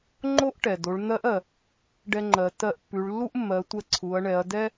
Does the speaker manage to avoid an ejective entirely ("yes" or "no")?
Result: yes